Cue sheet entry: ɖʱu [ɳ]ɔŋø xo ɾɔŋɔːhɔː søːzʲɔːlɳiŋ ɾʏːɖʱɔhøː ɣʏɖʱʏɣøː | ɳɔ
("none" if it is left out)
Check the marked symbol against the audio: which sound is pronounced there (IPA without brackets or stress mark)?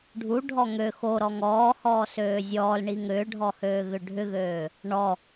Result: ɖʱ